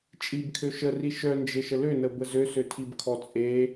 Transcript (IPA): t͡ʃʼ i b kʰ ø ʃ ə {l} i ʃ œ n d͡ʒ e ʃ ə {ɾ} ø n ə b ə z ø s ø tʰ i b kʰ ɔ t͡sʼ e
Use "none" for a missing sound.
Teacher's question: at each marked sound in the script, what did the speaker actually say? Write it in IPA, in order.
r, l

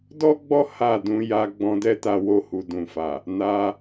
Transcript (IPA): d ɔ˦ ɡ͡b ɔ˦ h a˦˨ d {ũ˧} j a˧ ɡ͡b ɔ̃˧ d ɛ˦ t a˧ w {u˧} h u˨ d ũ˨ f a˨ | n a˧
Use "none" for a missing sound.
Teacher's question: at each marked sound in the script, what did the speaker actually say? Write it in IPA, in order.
ũ˧, o˧

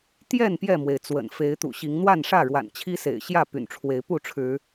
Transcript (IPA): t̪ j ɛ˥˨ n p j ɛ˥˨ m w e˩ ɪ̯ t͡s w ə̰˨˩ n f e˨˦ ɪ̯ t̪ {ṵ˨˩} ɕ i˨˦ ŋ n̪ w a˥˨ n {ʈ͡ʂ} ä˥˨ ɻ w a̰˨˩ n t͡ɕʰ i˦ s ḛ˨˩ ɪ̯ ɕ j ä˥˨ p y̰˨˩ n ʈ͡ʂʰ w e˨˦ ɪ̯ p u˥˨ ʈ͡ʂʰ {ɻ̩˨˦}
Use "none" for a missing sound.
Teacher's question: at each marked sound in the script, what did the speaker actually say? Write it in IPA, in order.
ṵ˨˩, ʂ, ɻ̩˨˦

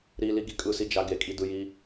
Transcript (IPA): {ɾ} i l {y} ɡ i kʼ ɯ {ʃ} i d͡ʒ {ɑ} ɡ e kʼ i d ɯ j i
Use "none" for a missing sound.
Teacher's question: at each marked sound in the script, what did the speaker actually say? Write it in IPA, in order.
ɾ, i, s, a

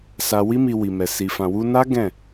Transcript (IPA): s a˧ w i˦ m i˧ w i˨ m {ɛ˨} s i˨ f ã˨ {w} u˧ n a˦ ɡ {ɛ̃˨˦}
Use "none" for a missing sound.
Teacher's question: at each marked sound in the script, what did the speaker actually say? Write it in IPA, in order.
ɛ˨, w, ɛ̃˦˨

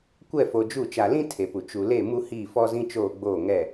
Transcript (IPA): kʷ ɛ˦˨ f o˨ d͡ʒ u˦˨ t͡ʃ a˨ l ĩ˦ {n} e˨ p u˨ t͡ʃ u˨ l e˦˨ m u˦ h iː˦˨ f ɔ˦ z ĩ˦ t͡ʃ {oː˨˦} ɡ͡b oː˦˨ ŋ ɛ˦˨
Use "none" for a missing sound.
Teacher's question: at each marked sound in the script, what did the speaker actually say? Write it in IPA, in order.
tʰ, oː˦˨

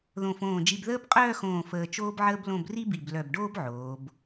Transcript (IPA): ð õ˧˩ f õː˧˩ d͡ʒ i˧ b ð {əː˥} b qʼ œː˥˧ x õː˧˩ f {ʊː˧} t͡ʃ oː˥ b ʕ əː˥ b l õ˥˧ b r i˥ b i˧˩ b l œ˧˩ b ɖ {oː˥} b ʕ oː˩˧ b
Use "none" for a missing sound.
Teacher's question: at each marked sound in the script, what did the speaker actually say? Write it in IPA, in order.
əː˥, əː˧, oː˥

